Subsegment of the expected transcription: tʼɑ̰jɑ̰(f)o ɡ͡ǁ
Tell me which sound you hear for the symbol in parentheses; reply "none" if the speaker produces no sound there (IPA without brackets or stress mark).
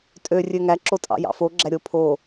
f